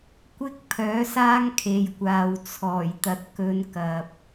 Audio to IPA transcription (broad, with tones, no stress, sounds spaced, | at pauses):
kʷ ɪ˥ k̚ pʰ œː˨˥ s aː˥ ŋ kʰ e˨ j kʷ aː˨ w t͡sʰ ɔː˨˩ j t̪ ɐ˨ t̚ k ɵ˨˧ n k ɐ˨ p̚